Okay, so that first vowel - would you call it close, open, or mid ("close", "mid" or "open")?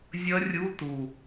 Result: mid